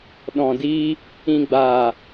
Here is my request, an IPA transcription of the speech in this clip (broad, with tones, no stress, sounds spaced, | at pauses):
ɗ ɔ̃˨ d iː˧ | ĩ˨ ɡ͡b aː˨